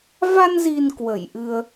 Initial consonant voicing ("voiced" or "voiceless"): voiced